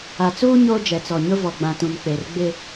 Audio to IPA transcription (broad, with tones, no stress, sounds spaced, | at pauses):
a˨ t͡s uː˦ ɲ oː˦ d͡ʒ ɛ˨ t͡s ɔ˨ ɲ ʊ˦ v ɔ˨ ɡ͡b ã˨ t ũ˨ n k͡p e˨ r ɡ͡b ɪ˦